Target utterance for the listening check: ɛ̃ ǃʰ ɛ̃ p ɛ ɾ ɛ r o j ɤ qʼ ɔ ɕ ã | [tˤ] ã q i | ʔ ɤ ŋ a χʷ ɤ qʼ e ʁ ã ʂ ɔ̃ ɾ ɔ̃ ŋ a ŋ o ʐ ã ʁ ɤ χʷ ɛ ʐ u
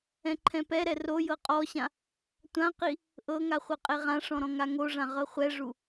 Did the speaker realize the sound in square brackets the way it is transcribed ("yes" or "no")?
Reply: no